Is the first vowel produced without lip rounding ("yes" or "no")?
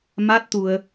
yes